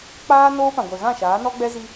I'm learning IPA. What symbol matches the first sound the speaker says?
k͡p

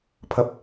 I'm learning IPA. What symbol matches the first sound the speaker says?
pʰ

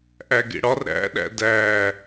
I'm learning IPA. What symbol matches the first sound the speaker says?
ʔ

